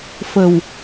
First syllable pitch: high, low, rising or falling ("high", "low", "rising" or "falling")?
low